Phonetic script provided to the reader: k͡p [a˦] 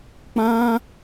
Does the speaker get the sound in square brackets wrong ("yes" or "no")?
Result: yes